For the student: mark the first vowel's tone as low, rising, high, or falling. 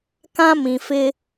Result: high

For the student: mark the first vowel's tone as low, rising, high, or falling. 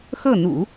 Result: falling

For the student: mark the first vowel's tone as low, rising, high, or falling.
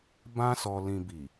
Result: high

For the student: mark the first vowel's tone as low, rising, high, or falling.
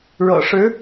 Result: low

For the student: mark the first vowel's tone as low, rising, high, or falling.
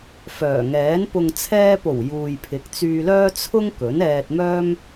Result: low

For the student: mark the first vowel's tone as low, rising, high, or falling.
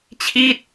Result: falling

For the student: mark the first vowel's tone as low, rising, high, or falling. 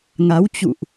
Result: rising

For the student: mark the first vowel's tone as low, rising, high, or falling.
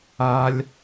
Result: high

